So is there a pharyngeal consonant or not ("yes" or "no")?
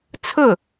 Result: no